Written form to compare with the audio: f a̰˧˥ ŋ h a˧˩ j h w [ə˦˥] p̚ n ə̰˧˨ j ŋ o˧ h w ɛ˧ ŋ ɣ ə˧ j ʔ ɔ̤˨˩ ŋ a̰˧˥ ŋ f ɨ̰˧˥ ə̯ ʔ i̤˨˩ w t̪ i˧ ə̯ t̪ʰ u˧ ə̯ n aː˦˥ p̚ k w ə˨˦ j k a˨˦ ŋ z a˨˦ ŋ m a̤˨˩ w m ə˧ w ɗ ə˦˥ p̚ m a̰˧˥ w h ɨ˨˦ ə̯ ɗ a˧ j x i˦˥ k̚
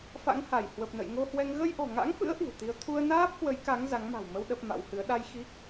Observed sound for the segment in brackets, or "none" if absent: ə˨˩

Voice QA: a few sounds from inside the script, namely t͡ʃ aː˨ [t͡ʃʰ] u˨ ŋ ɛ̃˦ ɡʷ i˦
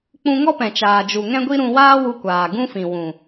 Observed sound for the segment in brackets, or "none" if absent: d͡ʒ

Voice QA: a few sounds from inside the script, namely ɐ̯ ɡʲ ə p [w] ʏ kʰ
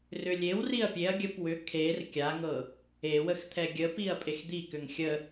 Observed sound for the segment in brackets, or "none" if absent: w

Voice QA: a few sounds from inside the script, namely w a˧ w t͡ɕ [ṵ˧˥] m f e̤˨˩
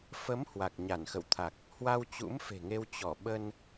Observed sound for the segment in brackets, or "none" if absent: ṵ˧˥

